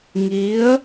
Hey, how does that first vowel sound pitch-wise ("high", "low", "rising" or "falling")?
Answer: rising